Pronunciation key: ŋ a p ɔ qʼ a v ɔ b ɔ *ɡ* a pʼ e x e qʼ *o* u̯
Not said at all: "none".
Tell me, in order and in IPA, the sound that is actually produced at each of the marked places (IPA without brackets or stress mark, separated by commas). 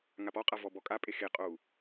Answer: kʼ, o